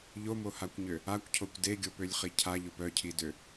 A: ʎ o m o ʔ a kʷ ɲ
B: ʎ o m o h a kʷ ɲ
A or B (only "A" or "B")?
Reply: B